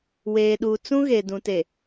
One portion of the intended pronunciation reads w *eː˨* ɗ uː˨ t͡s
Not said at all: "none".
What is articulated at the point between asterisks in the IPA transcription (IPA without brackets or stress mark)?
eː˨